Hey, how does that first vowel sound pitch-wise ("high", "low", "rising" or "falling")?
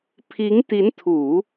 rising